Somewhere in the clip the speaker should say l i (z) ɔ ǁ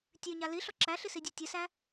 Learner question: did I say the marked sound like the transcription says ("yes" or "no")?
no